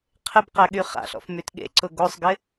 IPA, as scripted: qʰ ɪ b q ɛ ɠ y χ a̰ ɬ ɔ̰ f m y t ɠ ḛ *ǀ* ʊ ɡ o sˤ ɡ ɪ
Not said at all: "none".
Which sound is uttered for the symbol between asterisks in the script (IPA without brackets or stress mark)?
ǀ